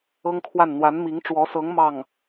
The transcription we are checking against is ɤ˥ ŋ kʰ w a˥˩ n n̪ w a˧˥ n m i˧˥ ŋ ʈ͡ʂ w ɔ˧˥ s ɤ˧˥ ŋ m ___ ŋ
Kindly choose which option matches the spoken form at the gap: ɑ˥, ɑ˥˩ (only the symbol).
ɑ˥˩